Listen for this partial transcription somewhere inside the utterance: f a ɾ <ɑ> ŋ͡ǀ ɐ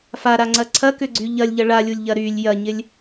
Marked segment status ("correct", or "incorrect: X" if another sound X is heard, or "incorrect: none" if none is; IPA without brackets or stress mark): incorrect: a